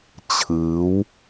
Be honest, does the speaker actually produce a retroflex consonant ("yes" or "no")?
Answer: no